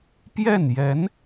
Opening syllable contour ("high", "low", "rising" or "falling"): falling